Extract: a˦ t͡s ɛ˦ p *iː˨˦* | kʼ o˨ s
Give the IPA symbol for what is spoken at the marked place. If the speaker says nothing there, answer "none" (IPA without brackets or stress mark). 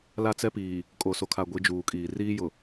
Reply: iː˨